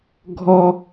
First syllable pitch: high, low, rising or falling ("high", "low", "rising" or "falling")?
high